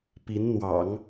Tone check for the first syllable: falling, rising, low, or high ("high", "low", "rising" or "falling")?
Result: rising